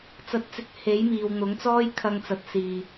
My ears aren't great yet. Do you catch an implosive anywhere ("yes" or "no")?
no